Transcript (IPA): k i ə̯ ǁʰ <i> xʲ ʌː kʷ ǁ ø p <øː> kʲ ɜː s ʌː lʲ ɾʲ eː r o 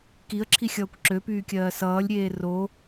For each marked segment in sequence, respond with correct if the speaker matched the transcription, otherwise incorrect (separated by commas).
correct, incorrect